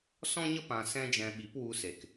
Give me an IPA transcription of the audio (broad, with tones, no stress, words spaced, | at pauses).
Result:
sɔ̃˦ɲə˦ pã˧sɛ̃˦d͡ʒɛ̃˧ ɓi˨˦p wu˧se˨k